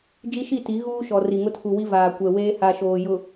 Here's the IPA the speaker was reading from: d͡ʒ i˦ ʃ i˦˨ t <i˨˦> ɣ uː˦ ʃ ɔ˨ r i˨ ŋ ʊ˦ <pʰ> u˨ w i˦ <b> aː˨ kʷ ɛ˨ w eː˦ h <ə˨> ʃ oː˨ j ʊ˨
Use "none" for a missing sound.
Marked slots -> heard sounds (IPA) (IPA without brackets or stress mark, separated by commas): i˨˦, tʰ, v, a˨